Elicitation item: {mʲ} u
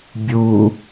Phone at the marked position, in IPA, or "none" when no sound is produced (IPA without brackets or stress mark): bʲ